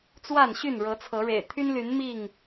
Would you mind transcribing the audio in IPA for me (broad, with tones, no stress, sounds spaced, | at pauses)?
t͡s w a˥˨ n ɕ y˥˨ n ɻ ɤ˨˦ t͡sʰ ɤ˨˦ ɻ ḛ˨˩ ɪ̯ t̪ʰ y˦ n l y˨˦ n m i˥˨ ŋ